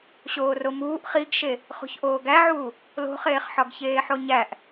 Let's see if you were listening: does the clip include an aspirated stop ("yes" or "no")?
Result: no